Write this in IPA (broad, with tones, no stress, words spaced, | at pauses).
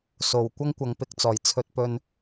so˨˩w kʷɐ˥ŋkʷɐ˨ŋpɪ˧k̚t͡sɔː˨˩j t͡sʰɵ˧t̚pɵ˧n